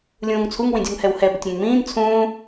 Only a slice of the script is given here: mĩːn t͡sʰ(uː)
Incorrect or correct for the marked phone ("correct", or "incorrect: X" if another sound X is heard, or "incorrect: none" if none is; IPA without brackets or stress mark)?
incorrect: ũː